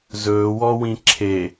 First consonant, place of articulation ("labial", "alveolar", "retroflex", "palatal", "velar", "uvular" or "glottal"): alveolar